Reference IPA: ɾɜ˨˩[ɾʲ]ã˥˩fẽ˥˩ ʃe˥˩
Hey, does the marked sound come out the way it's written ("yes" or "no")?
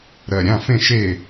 yes